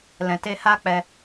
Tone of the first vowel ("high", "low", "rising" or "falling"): low